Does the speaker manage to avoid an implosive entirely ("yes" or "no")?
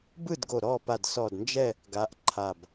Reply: yes